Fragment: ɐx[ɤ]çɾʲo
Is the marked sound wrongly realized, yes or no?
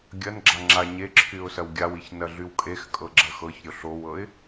no